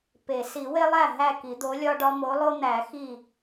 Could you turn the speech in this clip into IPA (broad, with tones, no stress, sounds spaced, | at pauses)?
p e˨˩˦ s i˨˩˦ w e˦ lˠ æ˥˩ ɦ æ˥˩ k i˨˩˦ d̪ o˨˥ lʲ ɒ˦ ɖ ɒ˦ m o˨˥ lˠ o˦ n̪ æ˨˩˦ x i˥˩